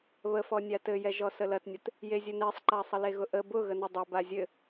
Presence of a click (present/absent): present